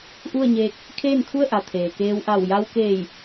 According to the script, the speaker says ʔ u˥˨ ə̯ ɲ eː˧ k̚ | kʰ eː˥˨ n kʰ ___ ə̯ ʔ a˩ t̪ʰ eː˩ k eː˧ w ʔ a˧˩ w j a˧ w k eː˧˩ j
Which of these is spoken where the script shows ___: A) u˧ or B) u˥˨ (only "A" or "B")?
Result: B